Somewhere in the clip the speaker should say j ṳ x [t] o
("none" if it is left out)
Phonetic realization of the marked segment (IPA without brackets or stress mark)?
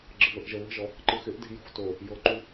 t